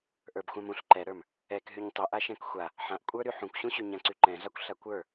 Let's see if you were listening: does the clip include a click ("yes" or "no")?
yes